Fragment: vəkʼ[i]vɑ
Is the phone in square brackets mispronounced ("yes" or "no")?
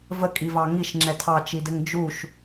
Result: no